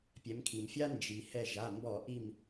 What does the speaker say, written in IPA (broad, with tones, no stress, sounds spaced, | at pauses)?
pʲ ɛ˩˧ m kʰ i˩ m fʲ a˥ n d͡ʒ i˩ h ɛ˧˩ ʒ a˩˧˩ m b ɔ˧˩˧ ʔ i˧˩ m